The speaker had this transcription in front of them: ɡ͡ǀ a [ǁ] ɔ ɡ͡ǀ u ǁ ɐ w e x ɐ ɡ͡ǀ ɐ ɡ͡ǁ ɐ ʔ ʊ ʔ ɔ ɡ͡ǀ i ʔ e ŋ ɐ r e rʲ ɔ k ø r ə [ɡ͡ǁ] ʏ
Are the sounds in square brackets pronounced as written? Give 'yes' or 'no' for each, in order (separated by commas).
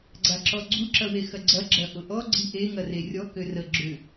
yes, yes